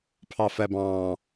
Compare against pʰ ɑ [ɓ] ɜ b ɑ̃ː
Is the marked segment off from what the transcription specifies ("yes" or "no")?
yes